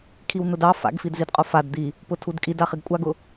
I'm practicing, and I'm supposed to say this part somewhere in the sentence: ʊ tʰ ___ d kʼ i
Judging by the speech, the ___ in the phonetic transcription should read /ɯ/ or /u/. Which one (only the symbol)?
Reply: u